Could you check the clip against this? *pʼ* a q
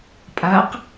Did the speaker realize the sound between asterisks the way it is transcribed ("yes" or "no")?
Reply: yes